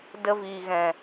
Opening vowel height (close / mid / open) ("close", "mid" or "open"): mid